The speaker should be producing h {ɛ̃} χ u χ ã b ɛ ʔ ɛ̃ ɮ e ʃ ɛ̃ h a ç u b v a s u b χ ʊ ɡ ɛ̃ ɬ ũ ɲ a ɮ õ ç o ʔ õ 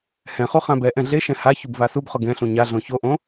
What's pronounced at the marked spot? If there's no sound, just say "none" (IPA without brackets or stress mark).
ɛ̃